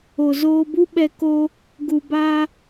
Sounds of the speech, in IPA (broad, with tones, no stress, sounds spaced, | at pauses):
o˨ z oː˧ b u˦ ɓ ɛ˧ k o˧ | ɡ u˨ b a˧